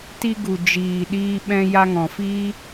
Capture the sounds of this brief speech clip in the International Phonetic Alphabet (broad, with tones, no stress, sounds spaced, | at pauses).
t i˧ ɡ u˨ d͡ʒ iː˨ ɗ iː˧ ɓ ɛ̃˧ j a˧ ŋ ɔ̃˨ f iː˦